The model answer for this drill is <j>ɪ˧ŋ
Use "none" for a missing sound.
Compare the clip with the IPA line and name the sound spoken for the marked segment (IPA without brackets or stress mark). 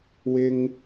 w